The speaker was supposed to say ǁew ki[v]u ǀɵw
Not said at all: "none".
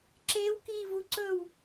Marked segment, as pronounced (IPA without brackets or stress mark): v